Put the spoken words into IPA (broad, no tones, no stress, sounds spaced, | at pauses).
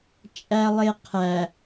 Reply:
t͡ʃʼ æ lˠ e qʰ æ